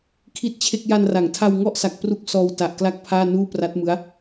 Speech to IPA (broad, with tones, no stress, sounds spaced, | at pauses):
kʰ i˥˩ t̚ t͡ɕʰ e˥˩ k̚ j a˧ n r a˩˦ ŋ tʰ a˧ w ŋ ɔ˥˩ ʔ s a˨˩ k̚ p r u˦˥ k̚ s ɔː˧ w t a˨˩ ʔ k l a˥˩ k̚ pʰ aː˥˩ n uː˥˩ p r a˦˥ t̚ m ɯ˦˥ a̯